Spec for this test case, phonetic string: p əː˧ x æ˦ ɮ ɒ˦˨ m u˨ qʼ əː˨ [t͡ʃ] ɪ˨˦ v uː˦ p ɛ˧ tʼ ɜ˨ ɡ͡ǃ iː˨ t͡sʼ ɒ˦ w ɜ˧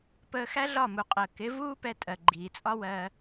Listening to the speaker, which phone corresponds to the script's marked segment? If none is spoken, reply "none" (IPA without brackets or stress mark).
k